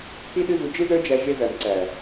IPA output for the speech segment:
t i˦ ɗ ɨ˦ v u˧ d͡ʒ ɨ˦ z ə˞˦ d͡ʒ æ˧ ʒ e˧ v æ˨ m ǀ æ˨

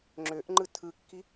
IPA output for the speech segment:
ŋ͡ǁ ø ʔ ŋ͡ǃ ɯ tʰ ɯ kː i

